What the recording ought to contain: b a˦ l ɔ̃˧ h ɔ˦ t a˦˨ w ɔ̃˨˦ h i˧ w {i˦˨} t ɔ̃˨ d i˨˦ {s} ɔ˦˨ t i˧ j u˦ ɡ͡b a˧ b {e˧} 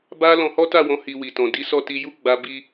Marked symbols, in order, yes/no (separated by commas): no, yes, no